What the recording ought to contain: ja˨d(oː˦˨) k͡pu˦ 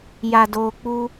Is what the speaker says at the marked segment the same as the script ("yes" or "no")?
no